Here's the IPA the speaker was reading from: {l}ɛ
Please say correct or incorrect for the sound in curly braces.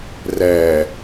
incorrect